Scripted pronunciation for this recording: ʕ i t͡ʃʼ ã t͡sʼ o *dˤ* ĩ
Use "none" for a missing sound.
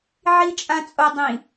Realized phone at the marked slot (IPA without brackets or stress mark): dˤ